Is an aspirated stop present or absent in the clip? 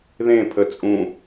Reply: present